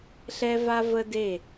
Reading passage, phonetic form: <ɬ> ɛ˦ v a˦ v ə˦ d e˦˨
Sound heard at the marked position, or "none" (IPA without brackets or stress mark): ɬ